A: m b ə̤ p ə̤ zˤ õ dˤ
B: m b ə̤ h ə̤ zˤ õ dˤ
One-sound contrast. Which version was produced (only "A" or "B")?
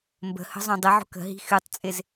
B